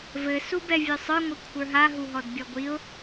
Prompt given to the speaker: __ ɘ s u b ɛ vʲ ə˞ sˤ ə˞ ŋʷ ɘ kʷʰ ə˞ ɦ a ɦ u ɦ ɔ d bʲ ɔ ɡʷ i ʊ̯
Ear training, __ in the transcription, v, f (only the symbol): v